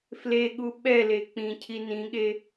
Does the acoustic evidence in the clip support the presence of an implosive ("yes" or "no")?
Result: yes